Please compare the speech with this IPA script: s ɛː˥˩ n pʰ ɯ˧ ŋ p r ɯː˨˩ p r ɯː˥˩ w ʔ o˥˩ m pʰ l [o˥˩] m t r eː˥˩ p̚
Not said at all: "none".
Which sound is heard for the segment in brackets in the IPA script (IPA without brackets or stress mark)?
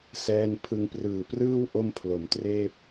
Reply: o˩˦